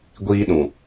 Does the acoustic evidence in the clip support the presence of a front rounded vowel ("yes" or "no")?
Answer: no